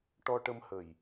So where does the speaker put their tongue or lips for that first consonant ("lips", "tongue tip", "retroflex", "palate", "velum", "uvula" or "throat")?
retroflex